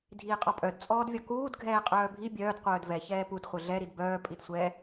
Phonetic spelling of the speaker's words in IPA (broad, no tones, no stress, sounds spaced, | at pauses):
dʱ iː qʼ ɒ pʼ œ d t͡sʼ ɔː d vʲ ɒ k uː d ɡʱ ɛː qʼ œː bʱ i bʲ œː d qʷ œː d v ɛ ç ɛː p u d χʷ ɘ ɮ ɛ ɾ i d b œː pʼ i d sʷ ɛ